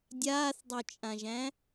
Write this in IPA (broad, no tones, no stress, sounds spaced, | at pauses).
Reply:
dʲ aː θ dˤ ɵ t͡ʃʼ ã ʒ æ̃